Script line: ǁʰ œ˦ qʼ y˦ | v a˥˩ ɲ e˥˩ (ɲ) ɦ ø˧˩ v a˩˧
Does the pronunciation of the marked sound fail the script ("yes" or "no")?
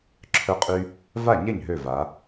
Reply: no